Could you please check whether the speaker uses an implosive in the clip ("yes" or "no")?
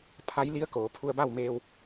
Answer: no